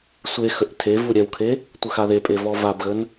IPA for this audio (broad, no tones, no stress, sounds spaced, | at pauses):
sʷ e x ə ʔ tʰ e v u ɾʲ ɛ w kʰ e | tʷ ə x a ð e pʼ e v ɔ v a b ɣ ə n